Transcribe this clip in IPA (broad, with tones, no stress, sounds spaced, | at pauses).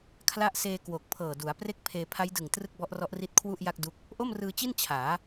kʰ l a˥˩ ʔ s eː˧ k w o˨˩ k̚ pʰ ɤː˨˩ d u˩˦ a̯ p r e˥˩ k̚ pʰ eː˧ pʰ a˦˥ j d ɯ˨˩ ŋ t r ɯ˥˩ k̚ b ɔ˦˥ ʔ r ɔ˦˥ ʔ r i˦˥ t̚ kʰ w u˥˩ ʔ j a˥˩ k̚ d u˦˥ k̚ | ʔ o˥˩ m r ɯː˧ t͡ɕ i˥˩ n t͡ɕʰ aː˩˦